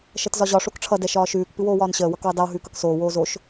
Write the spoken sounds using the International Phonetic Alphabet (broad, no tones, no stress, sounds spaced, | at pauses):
ʃ ʌ t z ɒ ʑ ɒ ʂ o k ʈ͡ʂʰ ʌ d ɛ ʃ ɒː ʃ ʉː k p ɨ w oː w ɒː n ɕ əː w ʌ k w ɨ dˤ ɛ w ɦ ʉː k ʌ k s oː w oː z o ʃ